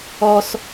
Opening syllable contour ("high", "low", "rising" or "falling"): high